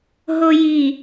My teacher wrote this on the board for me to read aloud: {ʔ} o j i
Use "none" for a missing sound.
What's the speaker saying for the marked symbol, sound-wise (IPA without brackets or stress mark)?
ɦ